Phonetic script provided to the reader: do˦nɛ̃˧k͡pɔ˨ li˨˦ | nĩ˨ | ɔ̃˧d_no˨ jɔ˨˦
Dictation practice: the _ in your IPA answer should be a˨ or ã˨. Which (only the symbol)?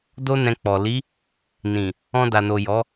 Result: a˨